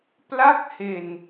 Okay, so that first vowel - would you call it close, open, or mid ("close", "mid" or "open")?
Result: open